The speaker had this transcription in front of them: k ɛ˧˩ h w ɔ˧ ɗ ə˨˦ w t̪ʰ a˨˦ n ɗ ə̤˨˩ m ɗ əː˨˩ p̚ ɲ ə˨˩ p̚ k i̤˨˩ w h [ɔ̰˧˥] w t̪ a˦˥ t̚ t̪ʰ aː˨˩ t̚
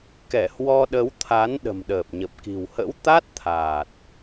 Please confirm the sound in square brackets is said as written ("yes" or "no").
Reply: no